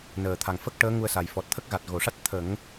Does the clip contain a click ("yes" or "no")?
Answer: no